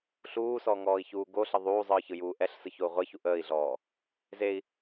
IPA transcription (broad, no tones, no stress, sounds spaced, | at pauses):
ɬ uː s ɔ ŋ ɔː i̯ ç uː ɡ o ɬ ə ðˤ uː zˤ ɯː ç ɯ j uː ʔ ɛ ɬ s ɯ ç o u̯ ʁʷ e ç u ʔ əː i̯ ɮ ɔː | z e i̯